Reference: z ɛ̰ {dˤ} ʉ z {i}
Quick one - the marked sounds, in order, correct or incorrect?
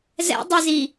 correct, correct

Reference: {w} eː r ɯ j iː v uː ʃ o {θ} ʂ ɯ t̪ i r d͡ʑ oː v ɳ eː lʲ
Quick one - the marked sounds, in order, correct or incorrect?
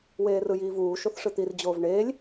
correct, correct

